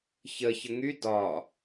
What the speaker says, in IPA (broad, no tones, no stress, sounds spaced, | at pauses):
ç ə ç ə ŋ y d ɒ